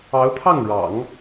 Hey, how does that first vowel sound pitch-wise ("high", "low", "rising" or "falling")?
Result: rising